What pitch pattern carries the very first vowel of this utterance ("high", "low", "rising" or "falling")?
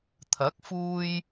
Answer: rising